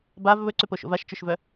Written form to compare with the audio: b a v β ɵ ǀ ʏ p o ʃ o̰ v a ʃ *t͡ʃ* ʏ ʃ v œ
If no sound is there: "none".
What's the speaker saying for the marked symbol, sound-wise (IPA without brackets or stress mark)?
t͡ʃ